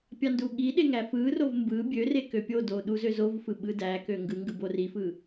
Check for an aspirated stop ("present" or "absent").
absent